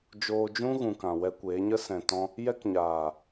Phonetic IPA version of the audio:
d͡ʒ oː˧ d͡ʒ ũ˦ ɣ ũ˨ k ã˨ w ɛ˧ kʷ eː˨˦ ɲ ə˦ s ɛ̃˨ t ɔ̃˧ | j ɛ˦ k ɲ aː˨

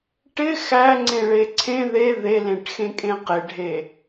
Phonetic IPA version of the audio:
ʈ ɪ x æ ŋ͡ǀ ẽ ɭ e ǀʰ ẽ ð e ð e l ẽ ʈ x ẽ kʼ ẽ q ɪ ɖʱ e

